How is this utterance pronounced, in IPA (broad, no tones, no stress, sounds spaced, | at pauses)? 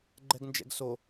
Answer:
ɡ͡ǃ ɛ ɡ n d͡ʒ ɛ̰ ɡ s o